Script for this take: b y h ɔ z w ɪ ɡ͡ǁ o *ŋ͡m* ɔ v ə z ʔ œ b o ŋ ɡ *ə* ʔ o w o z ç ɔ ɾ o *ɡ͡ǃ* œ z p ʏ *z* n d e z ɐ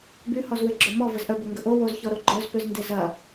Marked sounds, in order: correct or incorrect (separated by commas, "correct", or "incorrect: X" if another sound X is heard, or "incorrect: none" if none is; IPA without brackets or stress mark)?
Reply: incorrect: m, correct, correct, correct